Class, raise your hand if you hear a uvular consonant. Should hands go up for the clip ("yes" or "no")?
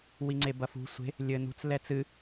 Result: no